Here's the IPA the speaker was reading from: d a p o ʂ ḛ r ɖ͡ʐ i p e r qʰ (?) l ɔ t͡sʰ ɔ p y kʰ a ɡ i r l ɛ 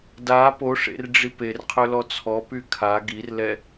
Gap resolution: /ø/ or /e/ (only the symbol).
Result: ø